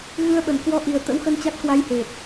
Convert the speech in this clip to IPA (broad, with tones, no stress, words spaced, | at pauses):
ɣɨ˧ə̯ɓə˧˩n kwɔ˧ʔi˨˩ə̯ t̪ə̰˧˥wxə˧nt͡ɕa˦˥t̚kwa˧j he˨˩t̚